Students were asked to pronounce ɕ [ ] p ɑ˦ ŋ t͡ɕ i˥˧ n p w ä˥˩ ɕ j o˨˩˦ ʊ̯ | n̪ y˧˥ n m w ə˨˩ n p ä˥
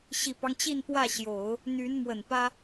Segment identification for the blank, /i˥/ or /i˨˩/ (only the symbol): i˨˩